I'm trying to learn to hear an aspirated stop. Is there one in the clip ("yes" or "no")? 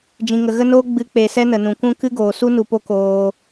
no